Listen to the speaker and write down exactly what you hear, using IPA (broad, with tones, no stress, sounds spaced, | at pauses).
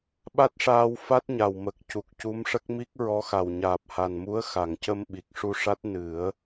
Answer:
ɓ a˦˥ t̚ ʂ aː˧ w f a˦˥ t̚ ɲ a˨˩ w m ə˨˩ k̚ c u˨˩ k̚ c u˧˥ m ʂ ə˦˥ k̚ m i˦˥ k̚ ɹ ɔ˧˥ x a˨˩ w ɲ aː˨˩ p̚ h a˨˩ n m u˧˥ ə̯ x a˨˩˨ ŋ c ə˧ m ɓ i˨˩ k̚ ʂ u˧ ʂ a˦˥ t̚ n ɨ˨˩˦ ə̯